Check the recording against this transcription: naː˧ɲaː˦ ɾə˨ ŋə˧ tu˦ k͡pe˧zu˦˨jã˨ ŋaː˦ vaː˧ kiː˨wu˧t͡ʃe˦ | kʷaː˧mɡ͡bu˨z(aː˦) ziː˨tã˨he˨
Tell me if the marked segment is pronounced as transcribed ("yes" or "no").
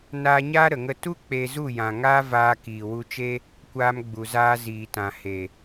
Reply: no